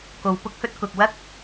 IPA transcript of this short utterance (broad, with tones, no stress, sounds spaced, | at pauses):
k o˨ w p ʊ˧ k̚ h ɵ˧ t̚ k ʊ˨ k̚ w ɐ˥ k̚